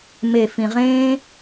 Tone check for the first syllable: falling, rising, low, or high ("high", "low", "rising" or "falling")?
low